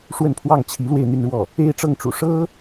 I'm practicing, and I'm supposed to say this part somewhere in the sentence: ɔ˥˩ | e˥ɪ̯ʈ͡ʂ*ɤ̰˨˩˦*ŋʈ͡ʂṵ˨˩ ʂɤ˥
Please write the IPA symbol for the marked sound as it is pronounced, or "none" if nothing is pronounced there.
ɤ˥˩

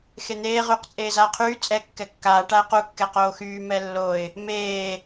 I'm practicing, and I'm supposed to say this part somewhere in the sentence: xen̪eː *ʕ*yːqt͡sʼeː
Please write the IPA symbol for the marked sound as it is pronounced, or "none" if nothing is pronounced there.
ʁ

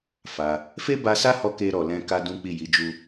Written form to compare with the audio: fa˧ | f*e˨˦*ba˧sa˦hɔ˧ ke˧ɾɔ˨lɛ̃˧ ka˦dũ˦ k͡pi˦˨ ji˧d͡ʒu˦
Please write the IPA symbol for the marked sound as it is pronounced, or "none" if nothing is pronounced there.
e˦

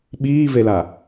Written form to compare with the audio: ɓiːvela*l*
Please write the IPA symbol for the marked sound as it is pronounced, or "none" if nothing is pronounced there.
none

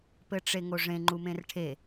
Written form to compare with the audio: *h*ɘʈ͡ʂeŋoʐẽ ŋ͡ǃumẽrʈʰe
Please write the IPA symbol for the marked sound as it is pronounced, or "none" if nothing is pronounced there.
p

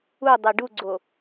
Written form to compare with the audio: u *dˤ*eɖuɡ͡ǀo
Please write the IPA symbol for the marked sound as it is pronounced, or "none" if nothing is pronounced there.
dˤ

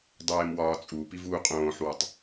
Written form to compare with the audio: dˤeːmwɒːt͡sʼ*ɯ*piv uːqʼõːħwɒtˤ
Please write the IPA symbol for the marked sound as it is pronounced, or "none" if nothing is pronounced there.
u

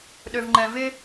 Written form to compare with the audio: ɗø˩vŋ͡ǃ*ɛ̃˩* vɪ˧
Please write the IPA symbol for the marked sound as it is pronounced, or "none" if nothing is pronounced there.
ɛ̃˩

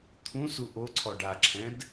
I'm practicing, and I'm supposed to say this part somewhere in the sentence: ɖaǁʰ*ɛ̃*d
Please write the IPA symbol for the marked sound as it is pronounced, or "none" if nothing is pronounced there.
ɛ̃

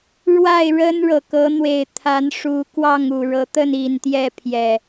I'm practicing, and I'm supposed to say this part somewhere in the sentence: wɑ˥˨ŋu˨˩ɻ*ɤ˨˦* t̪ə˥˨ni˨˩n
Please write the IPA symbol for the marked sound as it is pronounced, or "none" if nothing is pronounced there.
ɤ˨˦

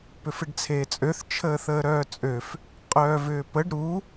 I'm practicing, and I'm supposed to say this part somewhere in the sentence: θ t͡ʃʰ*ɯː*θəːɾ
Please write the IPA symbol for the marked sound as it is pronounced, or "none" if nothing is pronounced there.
əː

